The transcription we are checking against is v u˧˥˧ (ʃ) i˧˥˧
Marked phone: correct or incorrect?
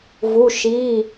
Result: correct